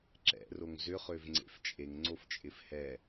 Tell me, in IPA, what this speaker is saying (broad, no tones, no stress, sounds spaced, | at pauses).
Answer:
ǁ ɛ̰ r o ŋ z ʏ χ ø v ŋ͡ǀ ḛ f t͡ʃʼ e ŋ ŋ͡ǀ o f t͡ʃʼ ɪ f h ɛ